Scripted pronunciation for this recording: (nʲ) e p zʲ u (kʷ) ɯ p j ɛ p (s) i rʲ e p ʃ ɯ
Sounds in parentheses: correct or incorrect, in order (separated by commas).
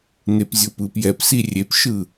incorrect, incorrect, correct